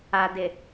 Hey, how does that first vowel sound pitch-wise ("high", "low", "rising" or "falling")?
low